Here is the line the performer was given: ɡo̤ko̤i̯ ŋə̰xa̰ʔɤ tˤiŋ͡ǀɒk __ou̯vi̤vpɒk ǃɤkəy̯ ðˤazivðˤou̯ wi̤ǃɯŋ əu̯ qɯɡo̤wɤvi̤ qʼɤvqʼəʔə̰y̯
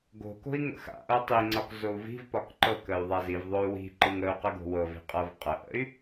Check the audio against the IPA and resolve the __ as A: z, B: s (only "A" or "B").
A